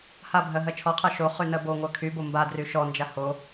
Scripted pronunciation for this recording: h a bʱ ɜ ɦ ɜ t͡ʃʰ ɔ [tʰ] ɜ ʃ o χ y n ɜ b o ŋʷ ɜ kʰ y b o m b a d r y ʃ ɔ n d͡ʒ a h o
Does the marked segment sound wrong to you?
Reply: yes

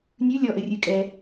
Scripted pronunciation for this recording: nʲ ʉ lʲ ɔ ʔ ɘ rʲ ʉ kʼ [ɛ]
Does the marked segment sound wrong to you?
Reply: no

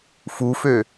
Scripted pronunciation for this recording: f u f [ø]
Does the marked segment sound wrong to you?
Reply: no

